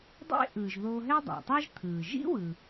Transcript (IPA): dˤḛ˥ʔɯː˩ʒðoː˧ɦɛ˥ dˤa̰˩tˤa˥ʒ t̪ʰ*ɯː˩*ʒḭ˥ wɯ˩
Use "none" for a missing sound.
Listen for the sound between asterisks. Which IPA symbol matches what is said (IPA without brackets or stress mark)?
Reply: ɯː˩